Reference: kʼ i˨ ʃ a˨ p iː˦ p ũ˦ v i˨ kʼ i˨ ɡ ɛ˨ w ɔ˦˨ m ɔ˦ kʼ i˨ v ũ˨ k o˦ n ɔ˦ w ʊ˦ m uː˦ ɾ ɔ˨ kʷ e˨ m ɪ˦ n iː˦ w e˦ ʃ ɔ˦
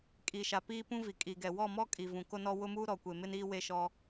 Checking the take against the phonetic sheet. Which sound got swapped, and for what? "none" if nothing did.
none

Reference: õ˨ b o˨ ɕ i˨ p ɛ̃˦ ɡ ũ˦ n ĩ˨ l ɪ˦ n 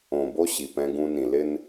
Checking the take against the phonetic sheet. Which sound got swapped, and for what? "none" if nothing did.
o˨ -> o˦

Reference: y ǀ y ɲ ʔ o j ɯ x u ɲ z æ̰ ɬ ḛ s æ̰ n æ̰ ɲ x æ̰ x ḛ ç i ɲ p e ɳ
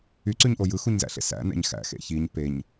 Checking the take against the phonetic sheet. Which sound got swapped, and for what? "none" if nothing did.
ɳ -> ɲ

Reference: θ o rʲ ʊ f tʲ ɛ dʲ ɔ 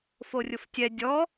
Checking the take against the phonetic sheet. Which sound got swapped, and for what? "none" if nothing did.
θ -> f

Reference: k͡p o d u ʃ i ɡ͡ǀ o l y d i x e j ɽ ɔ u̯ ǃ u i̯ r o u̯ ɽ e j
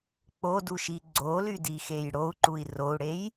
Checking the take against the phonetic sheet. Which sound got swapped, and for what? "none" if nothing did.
ɔ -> o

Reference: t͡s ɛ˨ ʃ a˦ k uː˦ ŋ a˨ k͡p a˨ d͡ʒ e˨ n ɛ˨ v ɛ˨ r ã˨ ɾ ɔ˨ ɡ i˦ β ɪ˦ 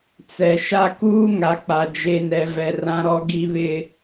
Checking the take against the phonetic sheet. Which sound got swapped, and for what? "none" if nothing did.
none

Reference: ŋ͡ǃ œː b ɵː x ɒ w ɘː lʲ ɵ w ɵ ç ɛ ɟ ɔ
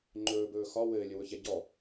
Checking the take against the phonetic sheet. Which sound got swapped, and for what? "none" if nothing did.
œː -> ɵː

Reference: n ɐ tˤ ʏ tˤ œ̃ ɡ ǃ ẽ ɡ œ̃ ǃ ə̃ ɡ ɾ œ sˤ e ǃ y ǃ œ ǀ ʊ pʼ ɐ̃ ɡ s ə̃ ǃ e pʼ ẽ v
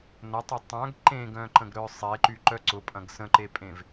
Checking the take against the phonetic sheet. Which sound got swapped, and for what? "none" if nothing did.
none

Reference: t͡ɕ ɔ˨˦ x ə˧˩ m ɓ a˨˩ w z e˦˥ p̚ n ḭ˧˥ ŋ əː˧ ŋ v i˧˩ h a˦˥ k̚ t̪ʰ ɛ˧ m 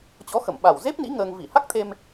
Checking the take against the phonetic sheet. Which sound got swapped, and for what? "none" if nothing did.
ɛ˧ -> e˧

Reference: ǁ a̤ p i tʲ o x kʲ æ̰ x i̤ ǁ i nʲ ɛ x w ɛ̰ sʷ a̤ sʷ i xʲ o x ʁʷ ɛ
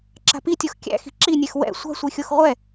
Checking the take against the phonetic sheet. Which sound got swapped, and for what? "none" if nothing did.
none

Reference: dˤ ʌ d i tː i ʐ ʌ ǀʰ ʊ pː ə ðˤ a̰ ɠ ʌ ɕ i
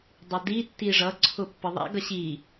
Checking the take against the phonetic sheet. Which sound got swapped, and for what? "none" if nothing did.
ɠ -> ɡ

